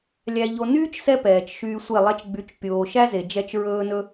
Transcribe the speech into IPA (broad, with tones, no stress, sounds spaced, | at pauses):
lʲ æ˧ ʎ o˧ n yː˦ t͡ʃ s ɛ˧ p ɛː˨ t͡ʃ ʃ yː˧ sʷ e˦˨ lˠ ɛ˧ t͡ʃ ɡ͡b y˨˦ t͡ʃ pʲ oː˨ ʃ æ˦ z e˨ d͡ʒ ɛ˧ t͡ʃ ɹ ɵː˧ n ɵ˧